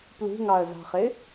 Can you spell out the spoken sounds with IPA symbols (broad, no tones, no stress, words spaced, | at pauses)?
plṳŋɑə̯zɑ̤χɪ